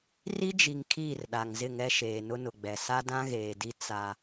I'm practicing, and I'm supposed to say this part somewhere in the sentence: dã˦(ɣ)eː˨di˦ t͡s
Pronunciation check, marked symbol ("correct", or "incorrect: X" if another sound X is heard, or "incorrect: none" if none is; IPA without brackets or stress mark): correct